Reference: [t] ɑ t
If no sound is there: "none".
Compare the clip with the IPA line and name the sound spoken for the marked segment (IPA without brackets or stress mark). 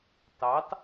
t